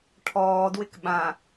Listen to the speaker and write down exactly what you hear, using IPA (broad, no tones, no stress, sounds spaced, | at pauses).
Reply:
ʈʰ ɔː d w ɪ k ɓ ã